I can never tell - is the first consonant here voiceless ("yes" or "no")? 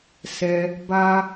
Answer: yes